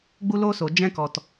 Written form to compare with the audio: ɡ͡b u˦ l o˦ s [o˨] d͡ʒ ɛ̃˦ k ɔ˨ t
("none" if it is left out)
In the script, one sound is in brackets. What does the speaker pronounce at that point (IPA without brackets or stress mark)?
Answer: o˨